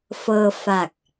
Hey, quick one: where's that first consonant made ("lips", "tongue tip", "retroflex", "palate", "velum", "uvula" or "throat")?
lips